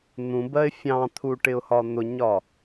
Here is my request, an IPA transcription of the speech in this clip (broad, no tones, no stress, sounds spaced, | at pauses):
n̪ ũ b ɜ ɪ̯ fʲ ɑ̃ t̪ʰ u ʈ ɪ ʊ̯ h ɒ n̪ ʊ ɲ ɒ